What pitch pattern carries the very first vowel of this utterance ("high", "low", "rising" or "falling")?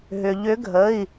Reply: low